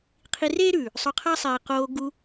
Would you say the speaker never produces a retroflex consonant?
yes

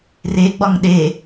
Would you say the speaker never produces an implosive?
no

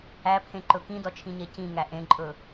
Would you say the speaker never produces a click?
no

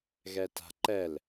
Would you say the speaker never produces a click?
no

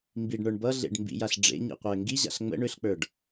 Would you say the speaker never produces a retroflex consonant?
no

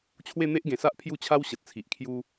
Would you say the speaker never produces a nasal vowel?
no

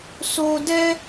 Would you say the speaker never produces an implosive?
yes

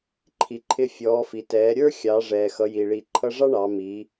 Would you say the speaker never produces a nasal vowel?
yes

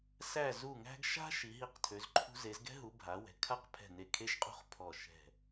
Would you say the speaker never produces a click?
no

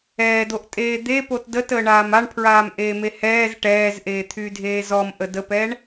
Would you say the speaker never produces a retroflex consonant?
no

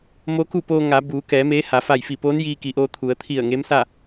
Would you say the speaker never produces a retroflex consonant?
yes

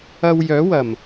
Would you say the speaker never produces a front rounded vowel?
no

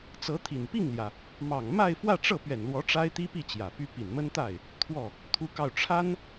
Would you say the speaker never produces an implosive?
yes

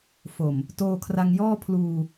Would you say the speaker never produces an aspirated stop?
no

